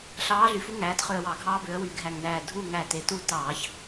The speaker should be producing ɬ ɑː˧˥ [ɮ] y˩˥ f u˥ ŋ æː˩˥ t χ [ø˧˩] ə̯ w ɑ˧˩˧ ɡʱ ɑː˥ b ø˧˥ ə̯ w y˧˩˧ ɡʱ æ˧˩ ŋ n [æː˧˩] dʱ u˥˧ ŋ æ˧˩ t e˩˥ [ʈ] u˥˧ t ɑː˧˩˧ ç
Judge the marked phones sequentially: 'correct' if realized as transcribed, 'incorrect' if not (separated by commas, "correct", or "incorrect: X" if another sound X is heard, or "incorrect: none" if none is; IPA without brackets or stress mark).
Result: correct, correct, correct, incorrect: t